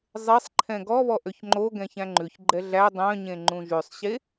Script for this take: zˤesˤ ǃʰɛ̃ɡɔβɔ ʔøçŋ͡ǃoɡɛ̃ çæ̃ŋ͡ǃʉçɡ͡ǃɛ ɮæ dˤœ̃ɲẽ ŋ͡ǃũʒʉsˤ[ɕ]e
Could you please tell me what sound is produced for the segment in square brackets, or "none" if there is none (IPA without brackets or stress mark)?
ɕ